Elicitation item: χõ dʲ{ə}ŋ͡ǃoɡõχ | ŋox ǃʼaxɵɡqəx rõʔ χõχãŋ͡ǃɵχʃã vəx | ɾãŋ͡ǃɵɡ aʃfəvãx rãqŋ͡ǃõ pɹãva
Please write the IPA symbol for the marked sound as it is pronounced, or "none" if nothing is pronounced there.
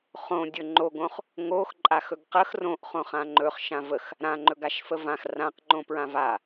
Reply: ɵ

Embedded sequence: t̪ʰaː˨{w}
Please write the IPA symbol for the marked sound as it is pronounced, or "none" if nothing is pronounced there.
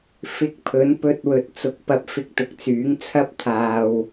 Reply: w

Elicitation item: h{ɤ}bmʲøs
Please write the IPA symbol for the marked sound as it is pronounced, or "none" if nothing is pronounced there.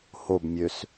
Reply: o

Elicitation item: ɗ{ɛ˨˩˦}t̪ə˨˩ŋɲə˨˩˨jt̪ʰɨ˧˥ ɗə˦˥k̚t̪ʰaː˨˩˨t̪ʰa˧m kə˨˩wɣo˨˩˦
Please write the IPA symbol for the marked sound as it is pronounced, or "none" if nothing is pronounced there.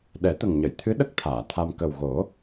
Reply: ɛ˨˩˦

